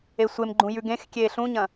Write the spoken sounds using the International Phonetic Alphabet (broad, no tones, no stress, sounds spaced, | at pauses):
e sʷ e m ɡ͡ǃ ũ j ʉ ɡ ẽ x kʲ eː ɬ ũ ɲ ɐ̃